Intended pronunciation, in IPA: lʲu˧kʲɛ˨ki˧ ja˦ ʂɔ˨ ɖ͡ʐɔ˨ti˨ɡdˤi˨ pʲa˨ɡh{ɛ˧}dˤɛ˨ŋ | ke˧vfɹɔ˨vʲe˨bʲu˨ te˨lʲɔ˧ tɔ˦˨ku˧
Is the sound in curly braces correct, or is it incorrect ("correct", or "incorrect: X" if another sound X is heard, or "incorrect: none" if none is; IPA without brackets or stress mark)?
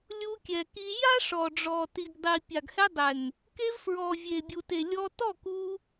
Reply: correct